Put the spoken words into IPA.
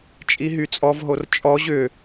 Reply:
t͡ʃʼ i ɦ y t͡sʼ ɔ v ɦ o r t͡ʃʼ ɔ ʑ ʏ

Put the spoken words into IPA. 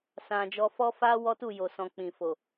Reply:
s ã˧ d͡ʒ ɔ˧ f ɔ˦ f a˦ w ɔ˦ t u˦˨ j o˨ s ɔ̃˨ k͡p ĩ˨ f o˨

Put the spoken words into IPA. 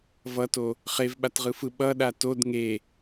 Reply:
v ʌ t o | χ e v ɓ a t ʁ ɯ f ɯ ɓ ʌ ɗ a t o d ŋ e

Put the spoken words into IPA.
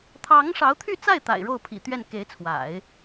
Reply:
t̪ʰ ɑ˧˥ ŋ ʂ ɑ˧˥ ʊ̯ t̪ʰ y˥˧ t͡s a˥˩ ɪ̯ t̪ a̰˨˩ ɪ̯ ɻ o˥˩ ʊ̯ pʰ ḭ˨˩ t̪ ɥ ɛ˥˩ n k e˧˥ ɪ̯ t͡sʰ w a̰˨˩˦ ɪ̯

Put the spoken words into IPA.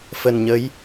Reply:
f ə˨˩ n ɲ ə˨˦ j

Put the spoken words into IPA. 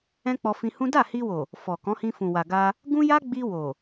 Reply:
ɛ̃˦ k͡p ɔ˧ f ĩ˧ h ũ˦ d a˦˨ h i˧ w o˨ | f ɔ˨ k ɔ̃˨˦ h ĩ˧ f ũ˨ w a˨ ɡ a˧ | ɡ ũ˦ j a˦ ɡ͡b i˧ w o˨

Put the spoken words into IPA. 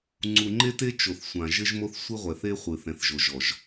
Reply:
ŋ͡ǀ u˨ ŋ͡ǃ e˦ t e˦ t͡ʃ o˨ θ sʷ ã˨ ʒ ɘ˦ ʒ m o˦ θ sʷ ɨ˦ ʁʷ ɛ˨ θ e˦ χʷ ɨ˨ θ ɛ̃˨ θ ʒ o˨ ʒ ɔ˨ ʒ

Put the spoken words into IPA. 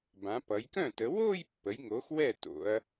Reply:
b ã˩˧ p ʌ˩˧ j k œ̃˥˩ t ə˩˧ w o˥˧ j pː ə˩˥ j ŋ o˩˥ x w ɛ˥˩ t o̰˩˧ ɐ̯

